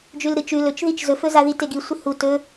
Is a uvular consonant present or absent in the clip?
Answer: absent